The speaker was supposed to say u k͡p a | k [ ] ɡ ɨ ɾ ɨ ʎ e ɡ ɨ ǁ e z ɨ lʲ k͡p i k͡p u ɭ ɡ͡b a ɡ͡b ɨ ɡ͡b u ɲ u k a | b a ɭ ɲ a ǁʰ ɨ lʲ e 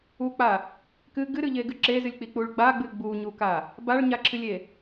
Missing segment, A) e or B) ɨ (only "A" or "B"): B